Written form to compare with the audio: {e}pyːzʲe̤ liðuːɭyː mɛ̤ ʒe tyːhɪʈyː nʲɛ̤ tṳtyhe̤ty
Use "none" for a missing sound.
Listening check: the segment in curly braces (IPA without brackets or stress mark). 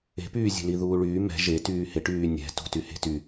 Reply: e̤